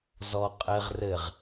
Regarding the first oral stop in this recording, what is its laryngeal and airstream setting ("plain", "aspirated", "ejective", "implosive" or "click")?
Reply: ejective